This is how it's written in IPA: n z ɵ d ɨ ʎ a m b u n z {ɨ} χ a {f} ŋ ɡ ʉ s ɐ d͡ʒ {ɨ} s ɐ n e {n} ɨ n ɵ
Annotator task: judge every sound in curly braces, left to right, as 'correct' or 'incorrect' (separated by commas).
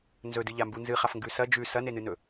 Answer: correct, correct, incorrect, correct